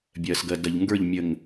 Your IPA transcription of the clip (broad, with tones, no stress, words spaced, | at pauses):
bʲɜ˨sɡɜ˨ dɐ˨ʎŋɡə˞˦˨ʎ mʲə˨ŋ